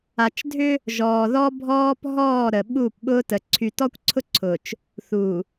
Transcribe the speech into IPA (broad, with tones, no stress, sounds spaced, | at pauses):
a˨ t͡ʃ dʱ ʏ˦ | ʒ ɔː˨ ð ɔ˦ bʱ ɔː˦ p ɦ ɔː˦˨ ɾ ə˨ ɓ u˦˨ p ɓ ʊ˦ t ə˨ ǀʰ y˨ t ɔ˦ kʷ ǀʰ ʊ˦ ǀʰ ʊ˨ t͡ʃ | θ u˨